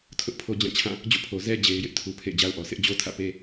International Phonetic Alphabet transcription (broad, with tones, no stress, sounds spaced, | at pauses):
tʰ ʊ˦ ʔ pʰ o˦ d͡ʑ ã˦˨ t͡ɕʰ ã˦˨ | d͡ʑ o̰˦˨ pʰ o˨ z ɛ˦ d͡ʑ e˨ ɪ̯ j ɪ˦ ʔ tʰ u˨ pʰ ḛ˦˨ ɪ̯ d͡ʑ a˦ ʊ̯ ʔ ɔ˨ sʰ ɪ˦ ʔ d͡ʑ o˦ tʰ ä̰˦˨ p e˦